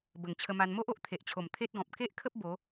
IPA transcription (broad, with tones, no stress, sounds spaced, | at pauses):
b ə˨˩ ŋ t͡ɕʰ ə˧ m a˧ n m o˦ ʔ o˨ ʔ t̪ʰ e˨ ʔ t͡ɕʰ o˨˩ m t̪ʰ e˦ t̚ ɡ ɔ̃˨ p̚ k e˦ ʔ kʰ ə˦ p̚ b o˨˦